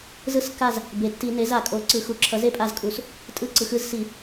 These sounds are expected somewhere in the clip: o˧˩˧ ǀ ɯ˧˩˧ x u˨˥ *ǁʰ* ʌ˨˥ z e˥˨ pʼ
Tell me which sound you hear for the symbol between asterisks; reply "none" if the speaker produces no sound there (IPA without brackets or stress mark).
ǁʰ